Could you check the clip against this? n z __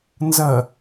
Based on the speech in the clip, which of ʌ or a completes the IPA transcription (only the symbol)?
ʌ